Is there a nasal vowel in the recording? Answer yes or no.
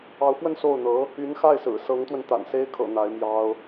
no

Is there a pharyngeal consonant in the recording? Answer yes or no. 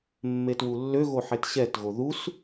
yes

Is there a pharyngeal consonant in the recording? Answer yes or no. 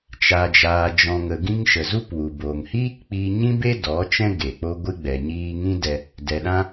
no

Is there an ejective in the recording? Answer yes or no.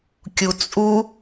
yes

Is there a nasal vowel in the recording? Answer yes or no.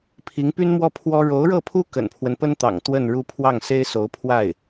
no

